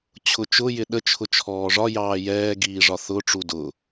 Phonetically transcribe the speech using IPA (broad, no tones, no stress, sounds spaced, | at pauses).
t͡ɕʰ ʊ t͡ʃ ʊ j ɪ ɗ ə t͡ʃʰ ʊ t͡ʃʰ ɔː ʐ ɒ j ɑː j ɛː ɡ iː ʐ ɒ θ ʊ ʈ͡ʂ u d ʊ